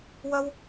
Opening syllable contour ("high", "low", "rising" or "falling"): high